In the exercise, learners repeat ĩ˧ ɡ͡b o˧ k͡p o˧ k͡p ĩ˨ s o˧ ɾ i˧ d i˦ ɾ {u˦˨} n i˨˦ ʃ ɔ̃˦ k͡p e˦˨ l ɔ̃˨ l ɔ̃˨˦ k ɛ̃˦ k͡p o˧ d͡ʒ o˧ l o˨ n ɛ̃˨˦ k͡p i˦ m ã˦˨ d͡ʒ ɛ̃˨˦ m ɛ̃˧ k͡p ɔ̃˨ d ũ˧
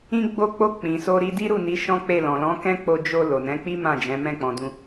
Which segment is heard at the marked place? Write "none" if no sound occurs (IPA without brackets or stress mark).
u˦˨